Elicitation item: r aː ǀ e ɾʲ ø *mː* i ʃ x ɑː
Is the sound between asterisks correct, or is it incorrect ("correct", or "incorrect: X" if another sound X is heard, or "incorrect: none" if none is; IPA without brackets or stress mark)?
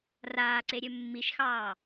correct